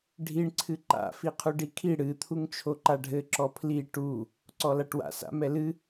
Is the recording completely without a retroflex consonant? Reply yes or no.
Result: no